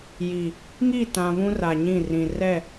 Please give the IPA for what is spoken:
ji˨ | ŋi˦˨tã˨ βũ˦ra˨ɲĩ˦˨rĩ˨ rɛ˦˨

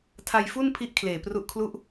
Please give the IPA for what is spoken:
tʰa˧jfu˥˩n pʰi˥˩ʔkʰleː˨˩pru˦˥ʔkʰlu˥˩ʔ

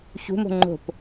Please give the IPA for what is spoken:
çṳmo̤ ŋ͡ǃo̤p

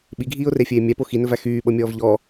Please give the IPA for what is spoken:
ɓiɡʱiːʊ̯refʲeː mʲæpo xinɵvæ xyːɓɤmʲɔːv ʎɔ

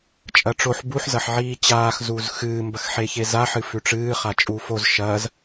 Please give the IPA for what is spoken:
t͡ʃʼɐʈ͡ʂoħ buħ zɐħʕiːt͡ɕaːx zuːzxɨː mbɐxħeçeza ħɨfʉʈ͡ʂɨː χat͡ʃʼuːfoz ʃɐːz

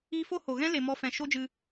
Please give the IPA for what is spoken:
iː˧fo˦ ho˨ ɣɛ̃˦le˨mɔ˧ fɛ̃˨ʃo˦d͡ʒɨ˧

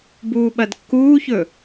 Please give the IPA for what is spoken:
buːɓɐdkːuːçɵ

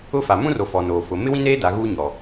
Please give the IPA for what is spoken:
ʊ˦fa˨ mũ˦ro˨ fɔ˨noː˨fʊ˨˦ mɪ˦wĩ˦neː˦ da˨˦ɣuː˦ɲɔ˨

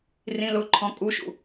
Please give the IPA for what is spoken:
rĩlʊ ǃʰɔ̃kʼuʃṵ

